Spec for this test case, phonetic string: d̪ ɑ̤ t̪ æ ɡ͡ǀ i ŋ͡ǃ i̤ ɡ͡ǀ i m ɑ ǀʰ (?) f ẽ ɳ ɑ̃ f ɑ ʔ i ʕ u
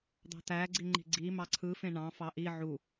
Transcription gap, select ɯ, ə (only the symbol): ɯ